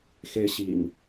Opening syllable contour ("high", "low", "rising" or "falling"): high